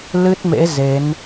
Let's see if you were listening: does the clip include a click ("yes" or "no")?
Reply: no